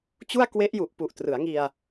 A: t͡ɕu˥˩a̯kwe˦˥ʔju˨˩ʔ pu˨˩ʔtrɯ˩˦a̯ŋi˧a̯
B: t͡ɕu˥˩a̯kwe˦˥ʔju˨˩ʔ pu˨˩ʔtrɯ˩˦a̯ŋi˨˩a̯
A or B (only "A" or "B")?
A